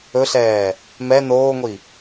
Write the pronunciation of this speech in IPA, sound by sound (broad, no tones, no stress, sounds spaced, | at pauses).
ɵ ɬ ɛː | m ɛ n oː ŋʷ i